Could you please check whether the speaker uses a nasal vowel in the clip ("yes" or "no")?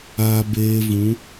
yes